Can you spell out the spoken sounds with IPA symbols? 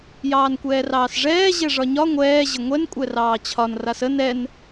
j ɑː n kʷ ɛː r ɑː s ʐ ɛː ʑ ɛ ʐ ɒ ɲ ɒ ŋʷ ɛː ʑ ə ŋʷ ɛ n kʷʼ ɛ r ɑː t͡ɕʰ ɒ n r a s ə n ɛ n

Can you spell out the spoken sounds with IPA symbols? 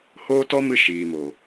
h oː˦ t ɔ˦ m ɨ˧ ʃ iː˨ m o˨

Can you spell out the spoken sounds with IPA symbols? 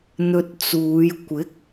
n̪ ɵ˧ t̚ t͡s uː˨˧ j kʷ ɪ˨˥ k̚

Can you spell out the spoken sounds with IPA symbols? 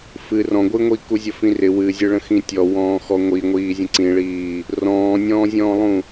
f ɨ r ɔ̃ ɡʷ ɨ ŋʷ i k u zʲ ə f ĩ r ɪ w ɨ zʲ ɨ ɭ ə̃ x ĩ tʲ ɔ w ɔ̃ː x ɔ ŋʷ i ŋʷ iː zʲ ə̃ ǀ ĩ ɭ iː | r ɔ̃ː nʲ ɔ̃ː zʲ ɔ̃ː lˠ ũ

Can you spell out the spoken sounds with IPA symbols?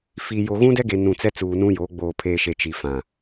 f i˨ j o˨ ɣ ũ˦ d ɛ˦ ɡ e˨ n ũ˨ t͡s ɛ˦ t͡s uː˨ n ũ˦ j oː˨˦ ɡ͡b oː˨ pʰ eː˨ ʃ e˨ t͡ʃ i˨ f ã˨

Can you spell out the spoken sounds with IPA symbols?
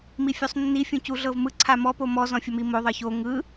m i fʲ u sˤ nː i fʲ ũ c u ɮ ɤ v m ɯ ǀʰ a m ɔ p o m ɔ z ɔ̃ fʲ ɔ m i m o ðˤ ɤ ç o ŋ ɯ

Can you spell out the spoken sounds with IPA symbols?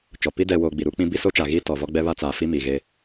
t͡ʃ ɔ˨ p i˦ d ɛ˨ w oː˨ ɡ͡b i˨ ɾ u˦ k͡p ĩ˦ b i˦ s o˦ t͡ʃ a˨ ɣ iː˦ t ɔ˨ v ɔ˦ ɡ͡b ɛ˦ β a˦ t͡s aː˨ f i˦ m iː˨ ɣ eː˦

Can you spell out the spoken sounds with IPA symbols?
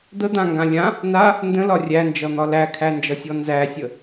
d̪ ə d̪ ã ŋ ɡ ã lʲ ã | n a | n d ə̃ l ɒ rʲ æ n d͡ʒ ʌ n̪ ɒ l æ kʰ æ n d͡ʒ ʌ sʲ ɔ n z æ sʲ ə

